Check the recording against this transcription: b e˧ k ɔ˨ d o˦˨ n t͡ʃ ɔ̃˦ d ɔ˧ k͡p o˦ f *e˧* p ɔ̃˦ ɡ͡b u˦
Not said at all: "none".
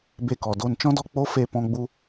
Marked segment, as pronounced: e˦˨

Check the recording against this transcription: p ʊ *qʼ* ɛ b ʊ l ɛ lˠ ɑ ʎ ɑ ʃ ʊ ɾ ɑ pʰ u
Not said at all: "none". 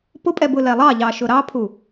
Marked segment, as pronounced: pʼ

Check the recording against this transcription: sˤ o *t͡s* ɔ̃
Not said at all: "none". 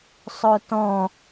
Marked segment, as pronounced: t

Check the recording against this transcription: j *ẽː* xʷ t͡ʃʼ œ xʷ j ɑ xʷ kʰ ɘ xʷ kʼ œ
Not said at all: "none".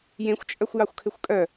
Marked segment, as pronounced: ẽ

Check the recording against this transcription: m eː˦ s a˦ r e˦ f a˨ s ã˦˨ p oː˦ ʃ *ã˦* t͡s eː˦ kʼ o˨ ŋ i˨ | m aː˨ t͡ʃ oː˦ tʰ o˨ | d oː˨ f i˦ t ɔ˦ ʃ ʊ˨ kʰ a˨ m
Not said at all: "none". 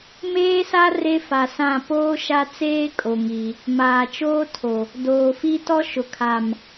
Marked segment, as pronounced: a˦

